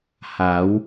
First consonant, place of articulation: glottal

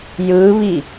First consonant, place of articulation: palatal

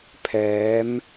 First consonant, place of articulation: labial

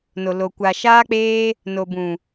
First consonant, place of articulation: alveolar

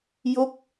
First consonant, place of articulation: palatal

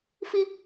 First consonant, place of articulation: labial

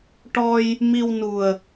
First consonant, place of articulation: retroflex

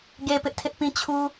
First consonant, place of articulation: velar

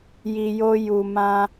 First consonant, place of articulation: palatal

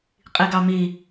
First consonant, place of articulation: uvular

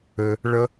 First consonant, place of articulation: retroflex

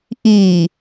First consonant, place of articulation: glottal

